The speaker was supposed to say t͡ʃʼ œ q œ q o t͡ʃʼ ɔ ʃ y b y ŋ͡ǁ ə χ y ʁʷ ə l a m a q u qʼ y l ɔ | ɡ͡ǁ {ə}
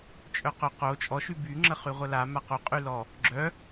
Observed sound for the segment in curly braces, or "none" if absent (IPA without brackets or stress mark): œ